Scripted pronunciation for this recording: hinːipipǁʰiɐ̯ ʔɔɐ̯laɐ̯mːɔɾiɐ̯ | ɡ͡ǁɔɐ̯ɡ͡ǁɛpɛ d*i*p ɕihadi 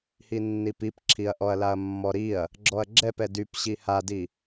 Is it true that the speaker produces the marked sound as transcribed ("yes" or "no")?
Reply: no